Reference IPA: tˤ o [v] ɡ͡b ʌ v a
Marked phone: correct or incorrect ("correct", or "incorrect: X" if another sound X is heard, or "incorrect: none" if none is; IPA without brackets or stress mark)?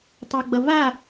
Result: incorrect: none